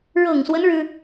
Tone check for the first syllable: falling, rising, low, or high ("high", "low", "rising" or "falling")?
low